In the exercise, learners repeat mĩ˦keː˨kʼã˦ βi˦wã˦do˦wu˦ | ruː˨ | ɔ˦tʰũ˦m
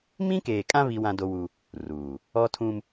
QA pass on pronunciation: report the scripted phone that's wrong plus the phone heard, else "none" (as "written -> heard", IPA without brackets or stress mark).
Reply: none